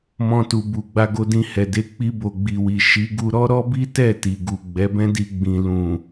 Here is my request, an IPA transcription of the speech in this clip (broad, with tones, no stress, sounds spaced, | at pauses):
m ɔ̃˧ t u˨ b u˨ ɡ͡b a˧ ɡ o˧ d ĩ˧ h ɛ˨ d e˧ k͡p i˧ b o˨ ɡ͡b i˨ w i˨ ʃ i˨˦ ɡ u˧ ɾ ɔ˦ ɾ ɔ˦ b i˦ t ɛ˦˨ t i˨ ɡ u˨ ɡ͡b ɛ˨˦ b ɛ̃˦ d i˧ ɡ͡b ĩ˨ l ũ˨